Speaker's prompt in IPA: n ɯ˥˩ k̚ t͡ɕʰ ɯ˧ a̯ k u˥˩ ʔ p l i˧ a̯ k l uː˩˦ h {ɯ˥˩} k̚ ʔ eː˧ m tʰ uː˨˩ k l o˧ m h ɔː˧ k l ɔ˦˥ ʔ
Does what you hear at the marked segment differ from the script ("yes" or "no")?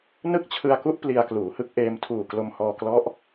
no